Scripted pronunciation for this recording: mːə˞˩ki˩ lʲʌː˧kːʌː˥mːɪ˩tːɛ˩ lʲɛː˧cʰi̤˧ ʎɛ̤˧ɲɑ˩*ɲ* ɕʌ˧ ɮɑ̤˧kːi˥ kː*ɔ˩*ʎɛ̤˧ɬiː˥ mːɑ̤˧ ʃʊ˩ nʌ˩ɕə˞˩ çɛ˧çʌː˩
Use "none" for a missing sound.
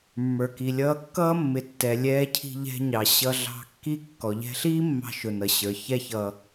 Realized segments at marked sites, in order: none, ɔ˩

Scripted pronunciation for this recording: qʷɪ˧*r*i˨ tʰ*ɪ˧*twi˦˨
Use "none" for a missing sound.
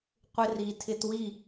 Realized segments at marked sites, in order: r, ɪ˧

